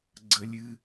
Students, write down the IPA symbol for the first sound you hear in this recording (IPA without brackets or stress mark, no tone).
ɡ͡ǀ